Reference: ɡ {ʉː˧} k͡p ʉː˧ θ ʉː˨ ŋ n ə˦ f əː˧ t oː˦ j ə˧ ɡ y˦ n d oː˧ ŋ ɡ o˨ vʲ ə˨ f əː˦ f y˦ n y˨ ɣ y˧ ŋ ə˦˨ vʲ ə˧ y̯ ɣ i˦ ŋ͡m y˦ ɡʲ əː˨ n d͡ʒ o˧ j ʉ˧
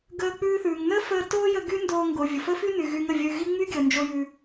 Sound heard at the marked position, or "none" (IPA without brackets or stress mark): əː˧